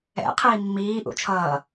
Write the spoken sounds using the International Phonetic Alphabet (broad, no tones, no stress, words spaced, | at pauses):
ɛ̰ qʰiːmːiː ʔṵt͡ʃʰʌː